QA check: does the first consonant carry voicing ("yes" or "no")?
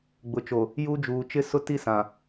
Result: yes